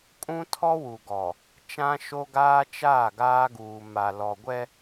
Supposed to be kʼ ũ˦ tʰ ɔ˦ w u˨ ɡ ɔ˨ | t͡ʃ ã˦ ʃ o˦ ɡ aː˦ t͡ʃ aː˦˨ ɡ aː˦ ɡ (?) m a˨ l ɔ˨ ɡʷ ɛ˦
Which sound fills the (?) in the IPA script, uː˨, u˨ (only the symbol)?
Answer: uː˨